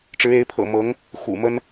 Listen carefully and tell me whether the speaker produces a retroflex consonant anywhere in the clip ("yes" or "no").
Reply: yes